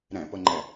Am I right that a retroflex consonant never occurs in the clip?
yes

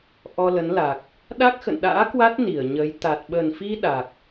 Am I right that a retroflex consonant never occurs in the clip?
yes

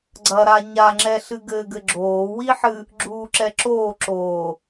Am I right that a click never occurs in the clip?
no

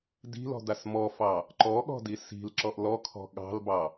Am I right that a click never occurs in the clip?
no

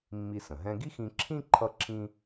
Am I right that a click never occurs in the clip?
no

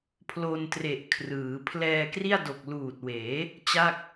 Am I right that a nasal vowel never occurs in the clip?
yes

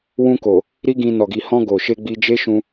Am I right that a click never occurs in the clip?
yes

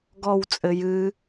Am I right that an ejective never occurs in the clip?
no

